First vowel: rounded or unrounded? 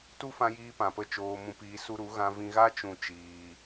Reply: rounded